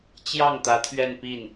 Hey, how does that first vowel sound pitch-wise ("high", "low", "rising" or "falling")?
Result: falling